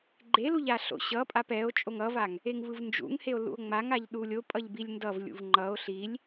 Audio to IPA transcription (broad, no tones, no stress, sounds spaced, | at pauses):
ɡ͡ǃ e l u ʎ a ɬ o̰ ɕ ʌ pʼ a p ɛ o̯ t͡ʃʼ o ŋ ʌ v a ŋ | e ŋ v ɯ v n d͡ʒ ṵ ŋ h e o̯ l ṵ o̯ ŋ͡m a ŋ a ʎ ɗ u lʲ o pʼ ʌ ʎ b i lʲ n d ʌ v lʲ ṵ v ŋ͡ǃ ʌ o̯ ɬ i lʲ